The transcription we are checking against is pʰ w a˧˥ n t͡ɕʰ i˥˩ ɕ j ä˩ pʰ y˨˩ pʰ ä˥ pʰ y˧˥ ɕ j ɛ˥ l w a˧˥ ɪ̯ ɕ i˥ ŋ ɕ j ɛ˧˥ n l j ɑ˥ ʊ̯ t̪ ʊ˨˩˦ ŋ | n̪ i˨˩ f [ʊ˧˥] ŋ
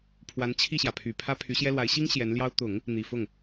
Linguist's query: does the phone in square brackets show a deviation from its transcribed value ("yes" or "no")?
yes